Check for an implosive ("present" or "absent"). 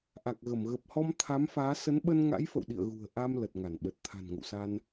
present